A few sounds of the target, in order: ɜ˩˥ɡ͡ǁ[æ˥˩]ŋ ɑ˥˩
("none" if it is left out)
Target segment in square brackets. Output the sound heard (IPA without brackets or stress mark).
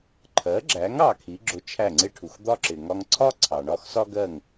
æ˩˥